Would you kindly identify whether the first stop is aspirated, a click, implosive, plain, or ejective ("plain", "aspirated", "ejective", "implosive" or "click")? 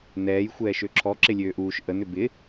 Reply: click